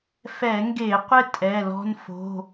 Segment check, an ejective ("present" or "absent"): present